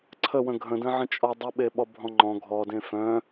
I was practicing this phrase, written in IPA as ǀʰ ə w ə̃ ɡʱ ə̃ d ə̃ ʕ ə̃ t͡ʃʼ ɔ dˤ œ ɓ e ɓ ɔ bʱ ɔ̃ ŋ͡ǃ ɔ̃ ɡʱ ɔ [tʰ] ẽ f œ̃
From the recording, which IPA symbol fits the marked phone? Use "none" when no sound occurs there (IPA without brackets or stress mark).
d